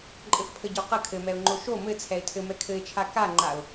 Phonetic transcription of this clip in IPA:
ǃʼ ɘ f pʰ ə ɟ o q ə kʰ ɘ m ɛ ʊ̯ ŋ͡ǃ o ʃ o m ɘ t͡sʰ ɛ ɪ̯ tʰ ɘ m ɛ kʰ ɘ ɪ̯ t͡ʃʰ a k a ŋ͡ǃ a ʊ̯

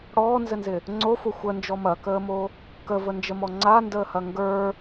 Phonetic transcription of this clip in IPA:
ɽ ɔː n z ɘ n z ɪ | ŋ͡ǀ o f o xʷ ə n d͡ʒ ɔ m ɐ k əː m o | k ə v ə n d͡ʒ ə m ɔ ŋ͡ǀ a n d əː h ɐ ŋ ɡ ə˞

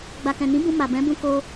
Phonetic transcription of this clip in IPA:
ɡ͡b a˨ k ɛ̃˨ n ĩ˨˦ b ũ˧ m a˨ b ɛ̃˨˦ b ũ˦ k o˦

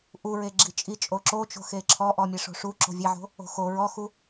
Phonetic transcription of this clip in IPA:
ʔ u ɹ e ɡ͡ǁ i t͡ʃʼ i t͡ʃʼ o ǁ o t͡ʃ o̤ x e ǁʰ ɔ ʔ ɔ mʲ e ʂ o̤ ʂ u ǁ o̤ vʲ e ʕ o̤ | o̤ x o ɹ ɔ x u

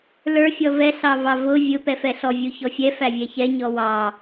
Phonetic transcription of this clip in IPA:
l ə˞ fʲ ɔ v ɛ ɬ ɑ v ɑ v ʊ vʲ ʊ p ɛ f ɛ ɬ ɔ vʲ u ç ɔ fʲ ɛ f æ vʲ ɛ ç ɛ ɲ ɔ w ɑ

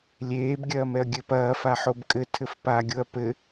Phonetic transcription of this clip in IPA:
lʲ eː b ɡʲ ɐː m ɛ ɐ̯ ɡʲ ɘ p ɐː f a ħ o b kʼ ɘ tʰ ɘ f p a ɡʲ o ɐ̯ p ɘ

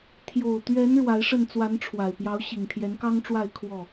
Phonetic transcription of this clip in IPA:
t̪ʰ j o˨˩ ʊ̯ t̪ ɥ ɛ˨˦ n ɻ w a˨˦ ɪ̯ ʂ ə˥˨ n t͡s w a˨˦ n ʈ͡ʂʰ w a˨˩ ɪ̯ p j ɑ˨˦ ʊ̯ ɕ i˨˩ ŋ t̪ʰ j ɛ˨˦ n k ɑ˦ ŋ ʈ͡ʂ w a˥˨ ɪ̯ kʰ w ɔ˥˨

